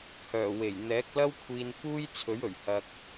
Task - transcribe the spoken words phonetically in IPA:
hœː˨˩ we˨˩j n̪ɛː˨˥k̚lɐ˥wkʷʰiː˧n fuː˥jt͡sʰɵ˨˥ɥɵ˨˩ɥ hɐ˧k̚

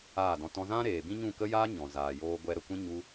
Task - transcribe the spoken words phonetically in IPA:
aː˦˨dɔ̃˧tɔ̃˦ zã˦ɾeː˨bĩ˦ ɲũ˦˨kə˦jaː˦ɲɔ̃˨ zaː˨joː˧ ɡʷɛ˧ɾə˨kʷĩ˦ ɲu˦

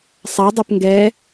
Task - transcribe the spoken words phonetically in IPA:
sˤadˤɛp ŋɡɛ

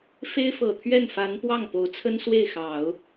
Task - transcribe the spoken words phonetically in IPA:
fe˥ɪ̯fɤ˨˩t̪ʰɥɛ˥˩nfa˧˥n pwɑ˥˩ŋpo˧˥ʊ̯t͡sʰə˥n swe˥˩ɪ̯xɑ˨˩˦ʊ̯

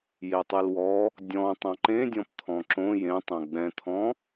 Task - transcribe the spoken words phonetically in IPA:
jetˤɨlwɔ | dʲɔ̃ tˤãǃẽdʲɔ̃p t̪ʰɔ̃ǁõ jẽtˤõ ɡ͡bɛ̃t̪ʰɔ̃

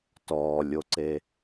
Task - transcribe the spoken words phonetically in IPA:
tɔːlʲoǀe

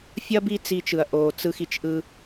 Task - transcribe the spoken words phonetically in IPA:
fʲɐ˥ bi˥t͡si˧t͡ʃɯ˩ɐ̯ʔoː˩ t͡sɯ˧xi˩t͡ʃ ʔɯ˧

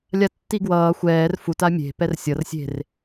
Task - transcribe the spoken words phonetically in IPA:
lʲatːiɡwʌː xʷɛːr futa mʲe̤ pɛrsʲʌr sʲe̤r

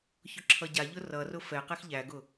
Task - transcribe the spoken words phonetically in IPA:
çʊǁʰʌɟaʎʊ rʌrʊ fɛqɛx ʎæɡʊ

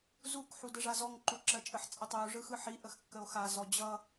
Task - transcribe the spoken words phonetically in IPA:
zuk ħudəʐazɔŋ ǃuǁɜt͡ʃʼəħ t͡sʼətˤɯo̯ ʐɯxɯħi ʔəxkːəo̯xa zɔd͡ʑʌ

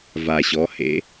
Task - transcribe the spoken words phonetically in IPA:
va˨˩ɕɔ˩˧hḛ˨˥

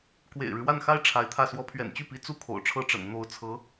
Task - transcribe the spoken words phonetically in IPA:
kwḛ˨˩ɪ̯ɻɻ̩˦wa˥˩nxa˥ɪ̯ ʈ͡ʂʰa˧˥ɪ̯t̪ʰä˥˩ swɔ˧˥pʰɥɛ̰˨˩nt͡ɕy˥˩pi˧˥ t͡su˥˩ kʰo̰˨˩ʊ̯ʈ͡ʂʰɤ˥ʈ͡ʂə̰˨˩n n̪o˧˥ʊ̯t͡sʰɤ˧˥

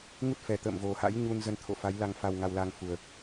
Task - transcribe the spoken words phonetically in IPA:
ŋu˦˥t̚fɛ˨˩ t̪ə̰ː˧˨mvo˨˩ha̰˧˥j ɲu˧nzə˧nt̪ʰo̰˧˨ fa˨˦j la˧ŋfa˧wŋa˧wla˧ŋ fu˨˩ə̯

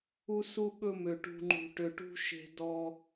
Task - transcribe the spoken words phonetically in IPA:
u˧su˧ɠɵ˧mø˨ ʈṳ˨ŋ͡ǃṳ˨ʈø˨ʈṳ˧ ʃe̤˧dɔ˧

